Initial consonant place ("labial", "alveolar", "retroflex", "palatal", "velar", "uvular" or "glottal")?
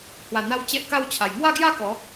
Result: glottal